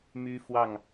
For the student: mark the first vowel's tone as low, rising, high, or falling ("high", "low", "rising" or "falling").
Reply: high